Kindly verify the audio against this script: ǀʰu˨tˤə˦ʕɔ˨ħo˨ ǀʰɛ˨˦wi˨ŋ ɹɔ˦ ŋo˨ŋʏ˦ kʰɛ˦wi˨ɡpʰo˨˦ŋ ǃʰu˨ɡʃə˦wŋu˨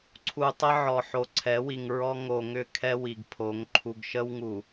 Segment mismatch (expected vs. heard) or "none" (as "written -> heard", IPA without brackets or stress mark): none